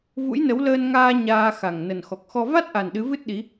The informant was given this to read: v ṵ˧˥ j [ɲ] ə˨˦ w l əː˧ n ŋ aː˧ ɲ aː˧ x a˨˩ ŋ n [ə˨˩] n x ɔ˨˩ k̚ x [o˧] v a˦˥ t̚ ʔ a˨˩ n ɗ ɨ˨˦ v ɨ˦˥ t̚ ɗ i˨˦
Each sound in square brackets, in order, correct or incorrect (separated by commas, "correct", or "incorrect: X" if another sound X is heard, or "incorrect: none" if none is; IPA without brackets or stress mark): incorrect: n, correct, incorrect: ɔ˧